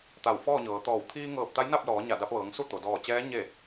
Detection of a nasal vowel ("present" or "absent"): absent